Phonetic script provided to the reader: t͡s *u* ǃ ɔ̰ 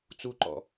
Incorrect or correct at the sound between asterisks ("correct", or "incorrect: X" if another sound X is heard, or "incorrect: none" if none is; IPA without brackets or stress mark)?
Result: correct